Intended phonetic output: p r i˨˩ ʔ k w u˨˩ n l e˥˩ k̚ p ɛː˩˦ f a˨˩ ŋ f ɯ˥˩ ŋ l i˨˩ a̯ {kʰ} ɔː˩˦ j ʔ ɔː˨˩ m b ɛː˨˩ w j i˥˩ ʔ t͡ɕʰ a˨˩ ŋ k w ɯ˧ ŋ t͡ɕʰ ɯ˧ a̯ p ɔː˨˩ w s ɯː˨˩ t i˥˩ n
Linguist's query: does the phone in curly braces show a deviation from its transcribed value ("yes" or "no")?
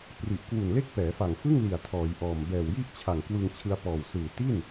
yes